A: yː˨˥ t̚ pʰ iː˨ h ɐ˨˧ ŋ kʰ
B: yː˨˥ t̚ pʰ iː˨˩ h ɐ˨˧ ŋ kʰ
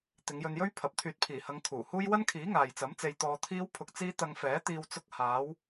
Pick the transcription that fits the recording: B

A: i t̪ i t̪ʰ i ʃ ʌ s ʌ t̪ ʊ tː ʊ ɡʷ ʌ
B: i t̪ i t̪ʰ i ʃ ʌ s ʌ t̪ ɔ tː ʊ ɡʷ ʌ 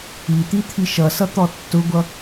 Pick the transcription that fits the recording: B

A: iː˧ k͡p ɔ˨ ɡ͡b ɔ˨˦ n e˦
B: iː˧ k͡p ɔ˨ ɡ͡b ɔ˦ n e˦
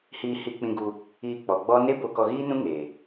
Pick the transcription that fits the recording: B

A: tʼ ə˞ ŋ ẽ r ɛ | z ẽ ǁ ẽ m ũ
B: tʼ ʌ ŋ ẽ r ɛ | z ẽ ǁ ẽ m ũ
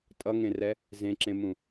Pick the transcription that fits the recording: B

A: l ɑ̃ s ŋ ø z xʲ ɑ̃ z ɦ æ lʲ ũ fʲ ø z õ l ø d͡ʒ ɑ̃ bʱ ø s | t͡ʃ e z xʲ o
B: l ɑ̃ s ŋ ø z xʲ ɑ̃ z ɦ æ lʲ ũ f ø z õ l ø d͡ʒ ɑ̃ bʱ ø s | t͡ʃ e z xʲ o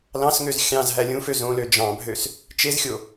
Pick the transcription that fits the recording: B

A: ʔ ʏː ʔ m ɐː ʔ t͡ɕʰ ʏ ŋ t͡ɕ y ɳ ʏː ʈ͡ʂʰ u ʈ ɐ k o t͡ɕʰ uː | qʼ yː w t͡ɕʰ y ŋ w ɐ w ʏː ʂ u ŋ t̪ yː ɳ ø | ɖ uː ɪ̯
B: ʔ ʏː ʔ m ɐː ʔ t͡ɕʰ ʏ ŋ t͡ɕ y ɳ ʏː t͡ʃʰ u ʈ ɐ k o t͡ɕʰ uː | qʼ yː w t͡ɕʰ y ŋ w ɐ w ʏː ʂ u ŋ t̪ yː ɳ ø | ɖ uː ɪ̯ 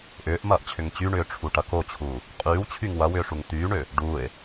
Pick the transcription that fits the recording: A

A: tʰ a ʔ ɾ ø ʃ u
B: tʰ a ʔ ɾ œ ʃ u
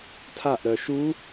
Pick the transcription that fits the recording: B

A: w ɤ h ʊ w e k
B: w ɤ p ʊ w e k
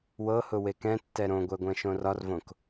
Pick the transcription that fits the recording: A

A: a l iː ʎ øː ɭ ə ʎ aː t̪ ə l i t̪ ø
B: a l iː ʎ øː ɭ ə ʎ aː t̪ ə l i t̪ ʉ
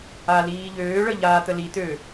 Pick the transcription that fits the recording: A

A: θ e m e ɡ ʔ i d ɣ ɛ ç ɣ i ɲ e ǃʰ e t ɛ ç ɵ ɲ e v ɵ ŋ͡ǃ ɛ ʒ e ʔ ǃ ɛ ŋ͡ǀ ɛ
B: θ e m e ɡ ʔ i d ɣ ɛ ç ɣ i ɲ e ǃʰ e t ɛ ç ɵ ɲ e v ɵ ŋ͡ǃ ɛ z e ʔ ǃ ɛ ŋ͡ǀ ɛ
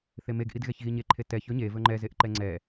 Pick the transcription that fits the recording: B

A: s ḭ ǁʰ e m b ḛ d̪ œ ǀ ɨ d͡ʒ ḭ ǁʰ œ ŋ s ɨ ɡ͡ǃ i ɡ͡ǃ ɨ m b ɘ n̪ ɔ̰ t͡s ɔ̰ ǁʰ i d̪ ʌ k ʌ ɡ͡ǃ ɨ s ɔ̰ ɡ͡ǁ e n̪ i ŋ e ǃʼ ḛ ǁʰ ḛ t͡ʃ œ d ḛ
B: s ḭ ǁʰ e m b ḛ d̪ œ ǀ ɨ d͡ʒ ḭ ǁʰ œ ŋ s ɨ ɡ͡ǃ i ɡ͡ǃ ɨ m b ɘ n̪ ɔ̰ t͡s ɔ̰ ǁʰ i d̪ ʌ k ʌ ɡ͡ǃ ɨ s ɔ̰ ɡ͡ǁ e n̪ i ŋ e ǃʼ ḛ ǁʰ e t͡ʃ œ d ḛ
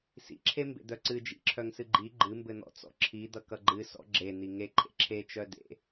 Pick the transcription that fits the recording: B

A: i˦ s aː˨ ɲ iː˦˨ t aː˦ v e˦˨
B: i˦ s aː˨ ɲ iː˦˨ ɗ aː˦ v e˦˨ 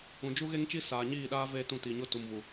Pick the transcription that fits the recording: B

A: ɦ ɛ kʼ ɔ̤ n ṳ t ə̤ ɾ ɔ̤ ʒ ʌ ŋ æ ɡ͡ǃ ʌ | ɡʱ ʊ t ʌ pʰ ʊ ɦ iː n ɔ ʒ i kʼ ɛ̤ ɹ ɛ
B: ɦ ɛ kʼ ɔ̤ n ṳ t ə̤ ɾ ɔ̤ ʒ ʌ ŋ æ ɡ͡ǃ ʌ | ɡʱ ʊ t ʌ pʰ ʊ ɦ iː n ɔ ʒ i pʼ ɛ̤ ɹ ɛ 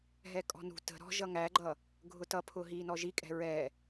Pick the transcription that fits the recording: A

